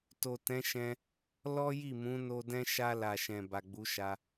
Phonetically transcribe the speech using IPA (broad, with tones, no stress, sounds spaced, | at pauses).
t o˨ t ɛ̃˨˦ ʃ ɛ̃˧ | l ɔ˦ j i˦˨ m ũ˨˦ n o˧ d ɛ̃˦ ʃ a˧ l a˨ ʃ ɛ̃˨ b a˨ ɡ͡b u˨˦ ʃ a˧